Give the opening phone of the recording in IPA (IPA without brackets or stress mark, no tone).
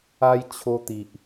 a